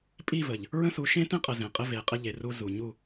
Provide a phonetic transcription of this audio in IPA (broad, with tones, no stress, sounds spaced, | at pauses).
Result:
pʼ i˦˨ v ə˨ ʎ | ɹ ə̃˦ s u˨˦ ʃ ẽ˦ t ẽ˦ qʼ ə˨ z ẽ˨ qʼ ɘ˦ v e˨ qʼ ɘ˦ ʎ e˨ r u˦ z u˨ ɲ u˦˨